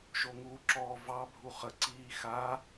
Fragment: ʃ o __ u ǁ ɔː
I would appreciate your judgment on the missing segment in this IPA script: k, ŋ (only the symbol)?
ŋ